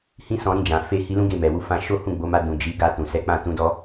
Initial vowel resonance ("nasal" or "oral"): nasal